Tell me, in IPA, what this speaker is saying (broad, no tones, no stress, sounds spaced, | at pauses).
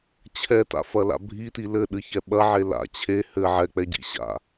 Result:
t͡ɕʰ ɛ t a̰ f ɐ l a̰ bʱ i t i l ɘ ɗ ɨ ç ɛ ɓ ɐ ʕ e l a̰ t͡ɕʰ e h ɘ ʕ ɛ k͡p ɛ ɟ ḭ ɕ a̰